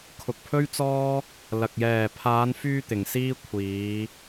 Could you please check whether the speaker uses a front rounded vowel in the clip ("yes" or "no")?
yes